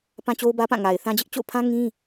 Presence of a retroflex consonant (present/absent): absent